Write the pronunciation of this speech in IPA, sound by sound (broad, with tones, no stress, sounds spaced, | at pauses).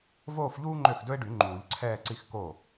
v oː˥˧ f ʎ uː˥ ŋ͡ǃ ø˥˩ x d ɵ˥ e̯ ɖ y˨˩˦ ŋ͡ǃ uː˨˩˦ ʎ ǀʰ ɛː˥˧ ǀ i˥˧ x k o˥˩